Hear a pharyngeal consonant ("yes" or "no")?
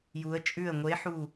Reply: yes